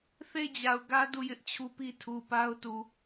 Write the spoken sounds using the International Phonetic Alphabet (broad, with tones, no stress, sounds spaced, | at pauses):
θ e˦˨ ɪ̯ d͡ʑ a˨ ʊ̯ ɡ ä˦ d u˦˨ j ɪ˦ ʔ t͡ɕʰ u˦ p i˦ tʰ u˨ p a˦ ʊ̯ t u˨